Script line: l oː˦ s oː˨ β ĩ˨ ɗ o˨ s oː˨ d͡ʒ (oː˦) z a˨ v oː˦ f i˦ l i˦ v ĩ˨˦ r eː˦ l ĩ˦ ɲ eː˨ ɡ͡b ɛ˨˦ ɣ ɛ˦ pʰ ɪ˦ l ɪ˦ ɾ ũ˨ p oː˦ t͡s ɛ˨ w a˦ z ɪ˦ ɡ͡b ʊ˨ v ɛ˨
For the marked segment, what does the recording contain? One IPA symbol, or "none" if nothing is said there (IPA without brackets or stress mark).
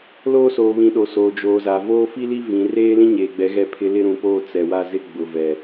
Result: oː˨